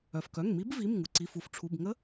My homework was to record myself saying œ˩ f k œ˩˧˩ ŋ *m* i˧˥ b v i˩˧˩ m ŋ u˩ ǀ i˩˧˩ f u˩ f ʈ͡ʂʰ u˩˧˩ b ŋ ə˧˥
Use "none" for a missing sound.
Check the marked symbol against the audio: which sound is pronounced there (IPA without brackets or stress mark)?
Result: m